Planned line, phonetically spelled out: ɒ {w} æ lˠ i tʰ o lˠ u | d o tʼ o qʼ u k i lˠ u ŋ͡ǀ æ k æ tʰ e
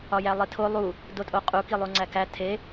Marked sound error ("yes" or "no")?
yes